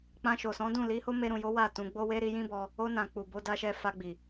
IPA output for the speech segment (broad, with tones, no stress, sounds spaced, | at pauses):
k͡p ã˧ ʃ o˨ s ɔ̃˨˦ d ũ˦˨ l i˨˦ h o˦ m e˧ ɾ ũ˨ j o˨˦ w a˦˨ t ũ˧ ɡ͡b o˦ w e˦ ɾ i˧ j ĩ˦ b ɔ˧ | o˧ n ã˨ k͡p u˨ b o˧ d a˧ ʃ ɛ˧ f a˧ ɡ͡b i˨